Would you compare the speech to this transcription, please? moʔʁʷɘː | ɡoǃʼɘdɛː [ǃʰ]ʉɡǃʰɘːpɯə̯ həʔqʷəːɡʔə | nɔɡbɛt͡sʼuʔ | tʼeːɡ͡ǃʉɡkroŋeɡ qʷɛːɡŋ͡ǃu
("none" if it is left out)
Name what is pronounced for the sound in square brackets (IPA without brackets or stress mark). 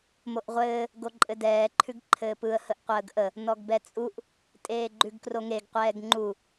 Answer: ǃʰ